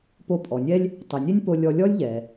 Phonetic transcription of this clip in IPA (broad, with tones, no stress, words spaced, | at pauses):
po˧pʼɔ˩nʲɛ˥lʲ | tˤi˩nʲe˥nʲ po˧lʲɔ˧ lʲɔ˥lʲʎɛ˩